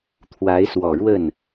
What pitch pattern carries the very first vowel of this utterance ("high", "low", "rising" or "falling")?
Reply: rising